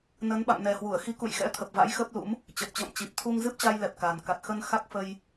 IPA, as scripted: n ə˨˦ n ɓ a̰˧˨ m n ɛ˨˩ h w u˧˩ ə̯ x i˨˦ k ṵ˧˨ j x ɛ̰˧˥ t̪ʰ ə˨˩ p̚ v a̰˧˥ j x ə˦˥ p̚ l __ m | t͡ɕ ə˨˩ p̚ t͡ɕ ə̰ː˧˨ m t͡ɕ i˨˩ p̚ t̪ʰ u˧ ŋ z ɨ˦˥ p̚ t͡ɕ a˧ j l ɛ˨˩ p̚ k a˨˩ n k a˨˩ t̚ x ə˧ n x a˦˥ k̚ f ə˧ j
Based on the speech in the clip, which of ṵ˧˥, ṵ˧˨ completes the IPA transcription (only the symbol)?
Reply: ṵ˧˥